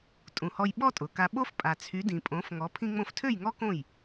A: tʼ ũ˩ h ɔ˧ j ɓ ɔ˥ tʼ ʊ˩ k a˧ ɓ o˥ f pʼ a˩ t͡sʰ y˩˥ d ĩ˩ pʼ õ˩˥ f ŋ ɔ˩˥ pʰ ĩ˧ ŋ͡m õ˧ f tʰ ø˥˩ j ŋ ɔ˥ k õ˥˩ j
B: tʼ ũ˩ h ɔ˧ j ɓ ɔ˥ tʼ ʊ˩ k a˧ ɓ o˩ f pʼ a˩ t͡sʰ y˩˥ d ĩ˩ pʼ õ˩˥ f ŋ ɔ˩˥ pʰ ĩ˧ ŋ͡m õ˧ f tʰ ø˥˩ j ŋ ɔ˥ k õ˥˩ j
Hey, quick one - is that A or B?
A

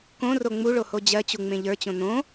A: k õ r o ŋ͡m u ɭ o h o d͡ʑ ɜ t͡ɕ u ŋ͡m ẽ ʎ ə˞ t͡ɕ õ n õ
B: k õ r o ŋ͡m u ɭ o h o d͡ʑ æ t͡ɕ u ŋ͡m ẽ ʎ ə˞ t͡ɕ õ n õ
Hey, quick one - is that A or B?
A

